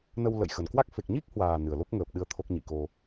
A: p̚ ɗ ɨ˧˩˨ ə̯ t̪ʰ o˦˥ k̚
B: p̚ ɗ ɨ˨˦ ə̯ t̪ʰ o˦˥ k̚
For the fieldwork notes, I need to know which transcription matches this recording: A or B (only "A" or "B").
B